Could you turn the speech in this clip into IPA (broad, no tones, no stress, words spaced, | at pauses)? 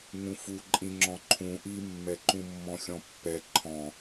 ŋũfu ǃʼĩŋ͡ǁɔ̃ǃʰũ ʔimːɛ ǃũmːɔ̃xʲɔ̃pːɛ ǃʰɔ̃